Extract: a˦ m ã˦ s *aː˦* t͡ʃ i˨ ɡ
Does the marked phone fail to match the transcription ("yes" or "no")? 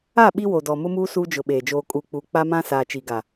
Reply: yes